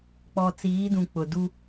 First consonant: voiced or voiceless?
voiceless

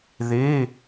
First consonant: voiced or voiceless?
voiced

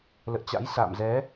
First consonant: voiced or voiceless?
voiced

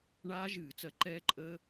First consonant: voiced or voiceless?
voiced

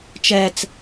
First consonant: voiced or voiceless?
voiceless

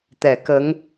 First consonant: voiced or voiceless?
voiceless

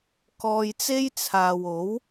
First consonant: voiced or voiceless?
voiceless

